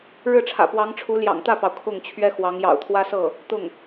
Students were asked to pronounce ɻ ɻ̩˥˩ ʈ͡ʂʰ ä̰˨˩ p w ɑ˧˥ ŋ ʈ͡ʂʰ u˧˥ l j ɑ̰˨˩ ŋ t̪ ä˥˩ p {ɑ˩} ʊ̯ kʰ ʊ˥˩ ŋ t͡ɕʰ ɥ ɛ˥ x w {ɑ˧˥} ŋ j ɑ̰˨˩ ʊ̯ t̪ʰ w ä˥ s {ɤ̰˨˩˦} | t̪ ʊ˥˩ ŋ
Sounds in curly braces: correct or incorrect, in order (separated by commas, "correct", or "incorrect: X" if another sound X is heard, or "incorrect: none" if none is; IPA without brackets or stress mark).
correct, correct, incorrect: ɤ˥˩